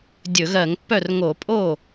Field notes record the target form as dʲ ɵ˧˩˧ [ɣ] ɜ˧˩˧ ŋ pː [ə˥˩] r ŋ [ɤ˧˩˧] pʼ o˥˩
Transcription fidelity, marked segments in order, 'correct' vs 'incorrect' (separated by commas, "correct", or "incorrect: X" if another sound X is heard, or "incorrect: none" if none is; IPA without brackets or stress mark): correct, incorrect: œ˥˩, incorrect: o˧˩˧